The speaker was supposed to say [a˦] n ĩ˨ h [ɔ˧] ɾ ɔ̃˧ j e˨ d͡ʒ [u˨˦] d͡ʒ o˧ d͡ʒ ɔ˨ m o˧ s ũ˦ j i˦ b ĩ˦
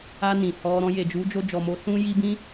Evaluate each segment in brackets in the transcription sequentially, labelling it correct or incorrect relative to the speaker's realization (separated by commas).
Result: incorrect, correct, correct